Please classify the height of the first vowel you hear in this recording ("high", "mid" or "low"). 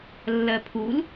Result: mid